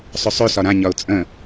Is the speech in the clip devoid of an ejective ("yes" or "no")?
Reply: no